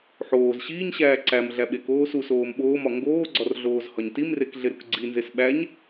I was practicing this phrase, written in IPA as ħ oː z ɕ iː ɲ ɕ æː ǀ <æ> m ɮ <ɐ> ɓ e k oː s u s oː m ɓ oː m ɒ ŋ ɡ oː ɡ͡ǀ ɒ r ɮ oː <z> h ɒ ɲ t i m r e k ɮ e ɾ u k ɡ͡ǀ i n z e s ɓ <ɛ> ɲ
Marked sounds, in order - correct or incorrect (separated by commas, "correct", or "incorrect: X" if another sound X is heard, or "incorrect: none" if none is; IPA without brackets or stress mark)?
correct, incorrect: æ, correct, incorrect: æ